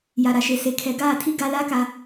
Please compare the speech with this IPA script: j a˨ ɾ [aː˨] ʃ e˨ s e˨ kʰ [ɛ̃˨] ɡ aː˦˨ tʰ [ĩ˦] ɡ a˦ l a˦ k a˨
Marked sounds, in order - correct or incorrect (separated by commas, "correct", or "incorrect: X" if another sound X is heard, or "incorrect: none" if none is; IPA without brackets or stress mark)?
incorrect: a˨, incorrect: ɛ˨, incorrect: i˦